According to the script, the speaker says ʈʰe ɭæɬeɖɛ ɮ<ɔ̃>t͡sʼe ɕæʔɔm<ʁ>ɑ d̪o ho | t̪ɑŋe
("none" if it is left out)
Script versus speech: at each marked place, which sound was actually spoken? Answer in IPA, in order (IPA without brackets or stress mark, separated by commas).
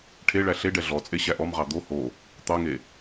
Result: ɔ, ʁ